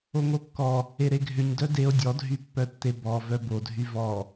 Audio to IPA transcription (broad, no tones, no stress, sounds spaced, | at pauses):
o ŋ o kː ɔ | e ɾ e ɡʱ ʏ ɲ d œ d e o̯ dʲ ɔ dʱ y pː œ tː e b ɔ v œ b o dʱ y v ɔ